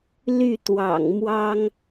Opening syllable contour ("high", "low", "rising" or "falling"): falling